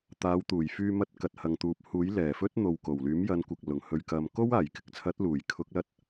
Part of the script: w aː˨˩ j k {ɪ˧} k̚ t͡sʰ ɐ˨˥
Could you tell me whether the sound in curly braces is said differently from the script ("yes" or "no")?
yes